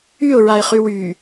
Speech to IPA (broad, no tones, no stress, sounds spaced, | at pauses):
y ʊ̯ ɹ a ɪ̯ χ y w y